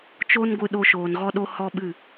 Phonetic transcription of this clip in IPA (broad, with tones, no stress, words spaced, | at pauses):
t͡ʃo˦nɡʷɨ˧ɗo˧ ʃoː˨nɣɔ˧ɗo˧ hɔ˦ɓɨ˦˨